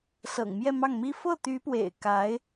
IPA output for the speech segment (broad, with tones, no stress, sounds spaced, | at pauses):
s ɤ̰˨˩ ŋ m j ɛ˥˧ m ɑ˥˩ ŋ m i˥ f ɤ˥˩ t̪ y˧˥ p w ḛ˨˩ ɪ̯ k a˧˥ ɪ̯